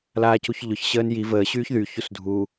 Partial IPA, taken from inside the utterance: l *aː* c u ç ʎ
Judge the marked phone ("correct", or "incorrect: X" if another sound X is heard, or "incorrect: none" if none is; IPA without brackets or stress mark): correct